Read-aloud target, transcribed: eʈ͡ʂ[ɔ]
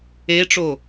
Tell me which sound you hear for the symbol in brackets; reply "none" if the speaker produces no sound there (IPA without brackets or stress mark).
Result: o